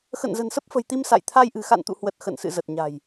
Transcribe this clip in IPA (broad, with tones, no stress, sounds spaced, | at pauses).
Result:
x ə̰˧˨ n z ə̤˨˩ n s ə˦˥ p̚ f ə̤˨˩ j t̪ i˧ m s a̰˧˨ j t̪ʰ a˧ j ʔ ɨ̤˨˩ x a̰˧˨ n t̪ ṵ˧˨ h w ə˨˩ t̚ x ə̰˧˨ n s ɨ̰˧˨ z ə˨˩ t̚ ɲ a̤˨˩ j